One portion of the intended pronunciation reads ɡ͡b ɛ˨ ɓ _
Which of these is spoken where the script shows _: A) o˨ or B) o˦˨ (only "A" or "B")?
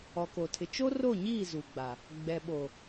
A